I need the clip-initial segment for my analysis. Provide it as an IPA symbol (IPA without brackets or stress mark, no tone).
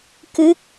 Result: k